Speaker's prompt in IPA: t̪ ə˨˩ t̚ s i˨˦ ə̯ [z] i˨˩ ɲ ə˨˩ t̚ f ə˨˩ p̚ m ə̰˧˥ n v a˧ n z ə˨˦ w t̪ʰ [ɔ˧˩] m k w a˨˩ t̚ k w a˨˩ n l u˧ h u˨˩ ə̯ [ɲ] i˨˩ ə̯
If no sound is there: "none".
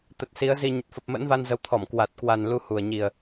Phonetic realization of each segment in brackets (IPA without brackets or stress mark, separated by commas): z, ɔ˧˩, ɲ